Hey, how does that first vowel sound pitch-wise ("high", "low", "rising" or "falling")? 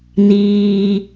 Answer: low